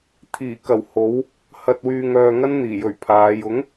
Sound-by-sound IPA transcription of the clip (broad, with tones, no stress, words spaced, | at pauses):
t̪ʰiː˨˩kɐ˨˩w ho˨˥w | hɐ˨t̚wyː˨ŋœː˨ ŋɐ˥nn̪iː˨˩jɵ˨˩ɥ pʰaː˨˧j ʊ˨˥ŋ